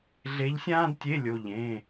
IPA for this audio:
ɮ e˧˥ ʎ sʲ ãː˥ d tʲ e˧˥˧ lʲ o˧˥˧ ʎ ẽ˧˥˧

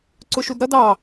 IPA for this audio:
ǀ ʊ ʃ u d ɾ ʌ d ɑ

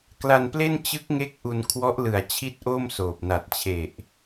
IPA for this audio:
k l a˧ n p l e˥˩ n t͡ɕ ɯ˦˥ k̚ ŋ e˦˥ k̚ ʔ u˧ n kʰ w ɔ˦˥ ʔ l ɯ˨˩ a̯ t͡ɕʰ i˥˩ t̚ ʔ o˥˩ m s oː˨˩ p̚ n a˨˩ t̚ t͡ɕʰ e˨˩ ʔ

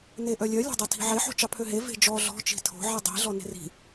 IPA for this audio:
n e ʔ œ lʲ œ lʲ ɑ̤ dˤ ɑ tʰ i̤ ʕ e ħ o̤ t͡ʃ ɑ pʰ ø ɦ e v e̤ d͡ʒ ɔ ɮ ɔ̤ t͡ʃ i̤ tʰ o̤ ʕ i dˤ i̤ ɮ ɔ n e̤ r i̤

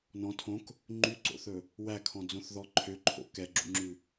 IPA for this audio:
n ɔ̃ tʰ õ k | ŋ͡ǃ y ǀ o̰ θ ɵ | w æ kʰ ɔ̃ d͡z õ θ ð ɔ ǃʰ ø ǃʰ o̰ k ɛ ɡ͡ǁ ṵ ŋ͡ǁ ʉ

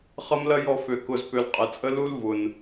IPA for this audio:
χ ɐ˦ m l ɐ˦ j ɔ˧ f ø˧ k ʊ˦ z p ø˧ l qʼ ɪ˨ t͡sʼ ə˦ l u˦ l v ʊ˨ n

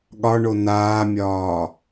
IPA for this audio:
ɠ ɒ ɳ o n aː mʲ ɒː

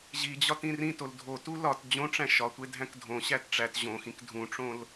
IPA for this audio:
ʑ i d͡ʑ ɒ t ĩ r ĩ t o l dʱ o t u l ɒ t d͡ʑ õ ʈ͡ʂ æ̃ ʃ ɒ tʷ e dʱ æ̃ k dʱ õ ɕ æ t ʈ͡ʂ æ t ʑ õ x ĩ k dʱ ũ ʈ͡ʂ õ l

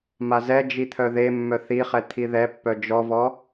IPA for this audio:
m a z ɛ d͡ʒ i t̪ʰ œ ð e mː œ θ i χ ɛ t̪ʰ i ð ɛ pː œ d͡ʒ ɔ v ɔ

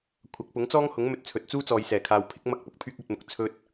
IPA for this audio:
kʷʰ ɐ˨˥ k̚ p ʊ˨˥ ŋ t͡s ɔː˥ ŋ h ʊ˨˥ ŋ m ɵ˧ t̚ t͡sʰ ɵ˨ t̚ t͡s uː˥ t͡s ɔː˨ j s ɛː˨˩ kʰ aː˨ w pʰ ɪ˥ k̚ m ɐ˥ k̚ p ʊ˧ k̚ pʰ yː˥ k̚ ɵ˧ t̚ m ʊ˨ k̚ t͡sʰ ɵ˥ t̚

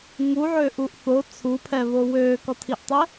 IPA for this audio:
ŋ u ʕ øː ʔ u ʔ θ o t͡sʰ u pʰ ɛ β o w øː k ɔ tʰ i ʔ tˤ ɛ

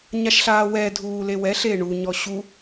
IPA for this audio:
ɲ a ʃ ɬ aː w ɛ dʱ uː l e w ɛ ɬ e ɳ u ɲ ɔ ɕ u

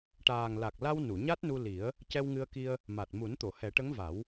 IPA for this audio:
ʈ aː˨˩ ŋ l a˨˩ k̚ l a˧ w n u˨˩˨ ɲ a˦˥ t̚ n u˧ l i˨˩˦ ə̯ | c ɛ˧ w ŋ ɨ˧ ə̯ k i˧ ə̯ | m a˨˩ t̚ m u˨˩˦ n t̪ o˨˩˨ h ɛ˨˩˦ ʈ ə˧˥ ŋ v a˨˩˦ w

